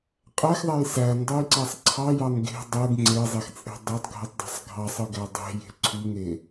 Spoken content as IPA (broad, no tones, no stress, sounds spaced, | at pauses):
qʼ æ x ðˤ æ j s æ n dˤ u j ǀ æ sˤ ǀʰ ɑ j ɑ n ɡ e̤ dˤ ɯ ɡ ŋ͡ǀ e zˤ e x t͡sʼ e̤ dˤ e tˤ ɡʱ ɯ tˤ dˤ æ̤ sˤ ɡʱ ɑ sˤ ɯ ɡ æ dˤ e̤ j e̤ ǀʰ y ŋ e